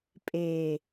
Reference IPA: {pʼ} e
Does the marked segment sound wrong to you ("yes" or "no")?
no